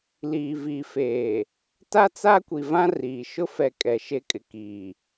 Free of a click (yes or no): yes